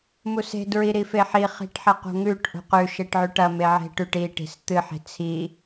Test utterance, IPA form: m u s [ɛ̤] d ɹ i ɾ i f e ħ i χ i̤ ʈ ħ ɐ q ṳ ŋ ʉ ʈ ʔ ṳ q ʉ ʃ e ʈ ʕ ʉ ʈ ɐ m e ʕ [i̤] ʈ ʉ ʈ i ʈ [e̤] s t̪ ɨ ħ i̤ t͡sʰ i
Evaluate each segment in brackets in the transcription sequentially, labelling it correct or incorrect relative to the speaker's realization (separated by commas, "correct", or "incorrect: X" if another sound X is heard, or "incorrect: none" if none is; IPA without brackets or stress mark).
incorrect: e̤, incorrect: e̤, incorrect: i̤